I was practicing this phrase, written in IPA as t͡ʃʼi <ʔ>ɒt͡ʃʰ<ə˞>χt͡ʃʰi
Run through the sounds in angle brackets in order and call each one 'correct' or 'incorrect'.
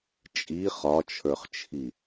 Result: incorrect, correct

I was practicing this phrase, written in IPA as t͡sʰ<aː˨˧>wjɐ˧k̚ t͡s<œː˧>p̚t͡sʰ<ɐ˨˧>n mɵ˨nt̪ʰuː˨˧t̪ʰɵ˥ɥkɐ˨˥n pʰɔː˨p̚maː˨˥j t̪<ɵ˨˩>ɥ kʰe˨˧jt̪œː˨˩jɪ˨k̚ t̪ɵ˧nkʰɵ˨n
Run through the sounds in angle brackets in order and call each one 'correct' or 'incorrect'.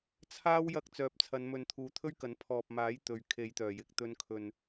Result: incorrect, incorrect, correct, incorrect

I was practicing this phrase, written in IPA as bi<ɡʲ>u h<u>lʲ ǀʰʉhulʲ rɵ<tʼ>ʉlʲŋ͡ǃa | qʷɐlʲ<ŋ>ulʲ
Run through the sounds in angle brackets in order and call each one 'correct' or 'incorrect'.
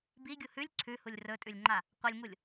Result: correct, incorrect, correct, correct

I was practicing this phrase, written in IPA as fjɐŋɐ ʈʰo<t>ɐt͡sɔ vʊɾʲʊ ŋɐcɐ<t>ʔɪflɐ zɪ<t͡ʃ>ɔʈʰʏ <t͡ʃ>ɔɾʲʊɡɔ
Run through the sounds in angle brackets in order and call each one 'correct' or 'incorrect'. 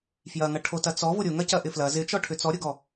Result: correct, incorrect, correct, incorrect

